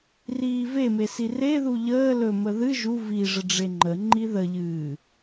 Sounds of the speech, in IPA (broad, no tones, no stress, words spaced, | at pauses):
riːveme sireðu ʎəː lɵmə ðɨ ʒu viʐə ɖ͡ʐeŋ͡ǃəŋ͡ǃi ðəʎɨː